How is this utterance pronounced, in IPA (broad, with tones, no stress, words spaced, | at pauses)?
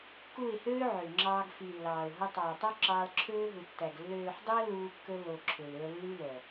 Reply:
ku˦˨ɪ̯høː˦ʕø˨ŋ͡ǁɑː˧ɡ fi˨lːɑː˨ʊ̯ ɦo˧tˤɑ˨ɪ̯tˤo˦ ǁɑː˧lǁʰøː˦ɦu˨tːæ˨ɡ lːøː˨ħdˤy˧ə̯ luː˧kːɵ˧ lo˨ ǁʰø˨lø˧ə̯lːy˦lœ˨